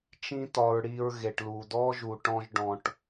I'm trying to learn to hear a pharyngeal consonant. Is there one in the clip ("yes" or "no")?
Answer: no